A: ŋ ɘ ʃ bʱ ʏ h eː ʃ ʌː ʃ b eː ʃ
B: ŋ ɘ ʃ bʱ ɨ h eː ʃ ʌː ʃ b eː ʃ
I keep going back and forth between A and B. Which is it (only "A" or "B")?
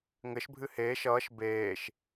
B